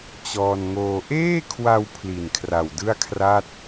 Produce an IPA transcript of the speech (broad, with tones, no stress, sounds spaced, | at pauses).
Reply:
t͡ɕ ɔː˧ n ŋ oː˧ ʔ eː˥˩ kʰ w a˧ w pʰ l i˨˩ n kʰ r a˨˩ w d ɯ˥˩ a̯ kʰ r a˥˩ t̚